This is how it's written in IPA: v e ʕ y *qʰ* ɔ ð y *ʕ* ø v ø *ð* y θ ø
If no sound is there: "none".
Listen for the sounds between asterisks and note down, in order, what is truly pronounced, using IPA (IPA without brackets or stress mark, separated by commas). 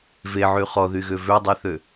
χ, ɣ, dˤ